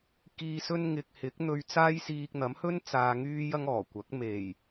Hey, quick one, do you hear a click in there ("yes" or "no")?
no